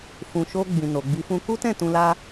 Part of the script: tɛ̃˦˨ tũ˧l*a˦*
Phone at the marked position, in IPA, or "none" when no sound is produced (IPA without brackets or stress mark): a˦